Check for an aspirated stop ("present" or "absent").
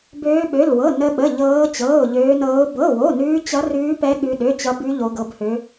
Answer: absent